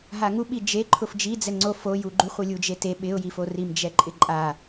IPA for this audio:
ɦ a ŋ u ɓ i d͡ʒ e ǃʰ ʊ f d͡ʒ i d͡z ɛ ŋ͡ǀ o f o j u ɡ͡ǃ u χʷ i lʲ u d͡ʒ e t e ɓ ɪ ʊ̯ j i f o r i m d͡ʒ ɛ ǃʼ ɪ ǃʼ a

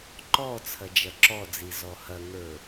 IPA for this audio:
ǃ ɔ t͡sʰ ɐ d͡ʒ ɐ ǁ ɔ d͡z i z ɔ h ɐ ŋ ə˞

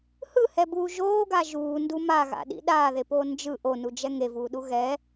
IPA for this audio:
h ɯ h ɛ b uː ʒ oː ɡ a ʒ uː n d u m a ɣ a̰ ɗ ḭ ɗ aː ð e p oː n d͡ʒ ɯ ʔ o n u d͡ʒ ɛ ŋ e v uː ɗ u ɣ ɛ

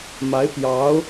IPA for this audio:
m a˧˥ ɪ̯ p j ɑ˧˥ ʊ̯

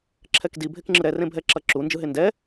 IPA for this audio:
ǁʰ ɛ k d i bʱ e k ŋ͡ǁ ɯ ɾ ɛ r ẽ bʱ ɛ ǁ ʌ ǁ u n d͡ʒ ɯ ɦ e n d ɛ

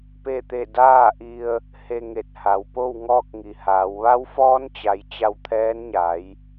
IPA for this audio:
p e˥˨ t̪ e˥˨ d aː˥˨ ʔ i˧ ə̯ | h e˧ ŋ e˧˩ t̚ h a˩ w p o˥˨ w ŋ ɔː˥˨ k̚ ŋ i˩ h aː˩˧ w ʋ a˧˥ w f ɔː˧˥ n t͡ɕ a˩˧ j t͡ɕ a˧ w t̪ʰ ɛː˧˥ n ɲ a˩˧ j

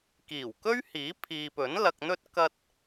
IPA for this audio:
k iː˨˩ w k ɵ˥ ɥ h iː˨˥ pʰ iː˨ p ɵ˨˥ n l ɐ˨ k̚ n̪ ɵ˧ t̚ k ɐ˧ t̚

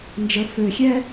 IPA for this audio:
n d͡ʒ ə f ø xʲ ɛ

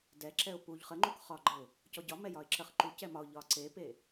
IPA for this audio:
d ɛ ǁ ɛ ʊ̯ p u ʎ χ ə ŋ͡ǃ u k χ ɒ ɡ͡ǃ ə ʊ̯ | c ɔ ɟ ɒ m ɛ j ɒ ɪ̯ ǁ ə χ ǃ u c ɛ m ɒ ʊ̯ ʎ ɒ ǀ e p e

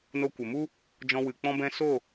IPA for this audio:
n o˧ kʷ ə˨ m u˦ | d͡ʒ ɔ̃˧ w ɨ˨ k͡p ɔ̃˧ b ɛ̃˧ s o˦˨

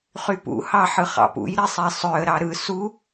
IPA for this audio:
χ y p ṵ h ɑ ħ ɯ χ ɑ̰ p ṵ j ɾ i sˤ i sˤ ø ə̯ ɾ ɑ ɾ ɯ s u

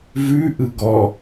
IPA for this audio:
v ʉ ʔ ɯ ɡ ɔ

